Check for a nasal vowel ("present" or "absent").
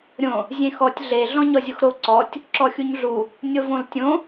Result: present